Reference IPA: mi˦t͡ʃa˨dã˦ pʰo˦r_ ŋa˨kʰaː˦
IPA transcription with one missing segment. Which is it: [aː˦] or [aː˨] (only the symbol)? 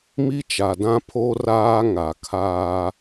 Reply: aː˦